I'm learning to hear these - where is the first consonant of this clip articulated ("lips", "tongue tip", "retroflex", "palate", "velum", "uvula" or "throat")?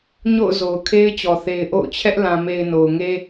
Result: palate